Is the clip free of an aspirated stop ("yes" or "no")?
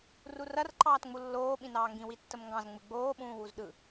yes